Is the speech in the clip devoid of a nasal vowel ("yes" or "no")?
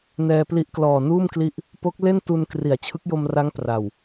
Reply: yes